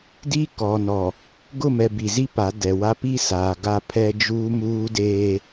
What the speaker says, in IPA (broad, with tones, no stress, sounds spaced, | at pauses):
d i˦ k ɔ˨ n ɔ˨ | ɡ ʊ˦˨ m ɛ˨ b i˨ z i˦ p a˨˦ d ɛ˨ w a˦ p i˦ s aː˨ ɡ a˦˨ pʰ ɛ˦ d͡ʒ uː˦ m uː˦ d eː˦